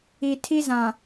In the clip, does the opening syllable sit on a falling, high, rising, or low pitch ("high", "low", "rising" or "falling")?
low